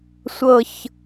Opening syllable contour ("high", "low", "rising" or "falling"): low